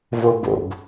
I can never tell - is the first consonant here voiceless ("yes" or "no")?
no